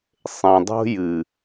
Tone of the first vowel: low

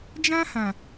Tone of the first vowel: high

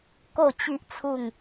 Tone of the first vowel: falling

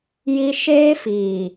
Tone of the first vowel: high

